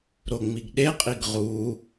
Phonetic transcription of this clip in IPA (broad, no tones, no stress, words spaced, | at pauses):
ɾoŋ͡miɡɗeqʼiɡ ʁu